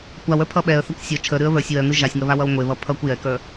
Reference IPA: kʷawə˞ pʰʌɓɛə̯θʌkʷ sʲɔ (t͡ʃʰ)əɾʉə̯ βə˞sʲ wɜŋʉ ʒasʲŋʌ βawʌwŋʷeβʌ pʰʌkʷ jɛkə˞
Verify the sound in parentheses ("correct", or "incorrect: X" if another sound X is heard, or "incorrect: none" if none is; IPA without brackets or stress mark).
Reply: correct